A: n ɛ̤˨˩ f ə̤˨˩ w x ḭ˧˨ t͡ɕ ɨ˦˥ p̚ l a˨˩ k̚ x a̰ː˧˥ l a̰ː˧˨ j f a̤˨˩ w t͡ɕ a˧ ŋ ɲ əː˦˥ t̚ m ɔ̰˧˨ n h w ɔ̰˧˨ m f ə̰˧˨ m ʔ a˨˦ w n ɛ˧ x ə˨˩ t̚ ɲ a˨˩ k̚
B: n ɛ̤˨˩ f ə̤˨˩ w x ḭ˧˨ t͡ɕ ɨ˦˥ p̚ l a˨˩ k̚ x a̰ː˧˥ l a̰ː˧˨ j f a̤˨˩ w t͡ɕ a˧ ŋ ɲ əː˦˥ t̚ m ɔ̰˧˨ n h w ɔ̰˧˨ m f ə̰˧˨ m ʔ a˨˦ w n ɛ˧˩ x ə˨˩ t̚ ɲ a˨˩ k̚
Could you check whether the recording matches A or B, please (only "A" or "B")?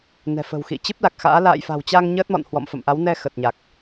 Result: A